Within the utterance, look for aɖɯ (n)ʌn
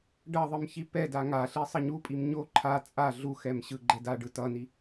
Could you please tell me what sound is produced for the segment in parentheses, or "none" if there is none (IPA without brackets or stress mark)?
t